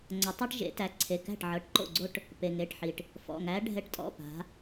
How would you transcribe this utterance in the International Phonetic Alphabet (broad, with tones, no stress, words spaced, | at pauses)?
ŋ͡ǀɐ˩˥tˤi˦ʈʒḛ˩˥ tæ˩˧˩ǀʰe˩˧˩kæ̤˥˩ʈ ʕɤ˩˧˩ʈǃo̰˥˩ɡ͡ǀo˦ʈ | pe˩ŋe˩˧˩ʈħi˩ʈ | fɔ̰˩˧˩ ŋæ˩˧ɖʱɛ˩˥ʈtʼɔ̰˩˧˩ pa̤˩˧